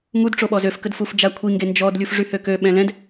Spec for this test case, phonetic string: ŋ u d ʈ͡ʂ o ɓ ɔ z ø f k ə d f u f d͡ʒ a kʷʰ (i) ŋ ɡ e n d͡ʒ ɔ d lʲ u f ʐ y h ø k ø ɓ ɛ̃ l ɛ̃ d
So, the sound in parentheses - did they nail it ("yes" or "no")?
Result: yes